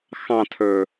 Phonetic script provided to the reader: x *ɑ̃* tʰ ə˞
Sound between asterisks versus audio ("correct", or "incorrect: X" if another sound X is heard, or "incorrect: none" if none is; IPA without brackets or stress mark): correct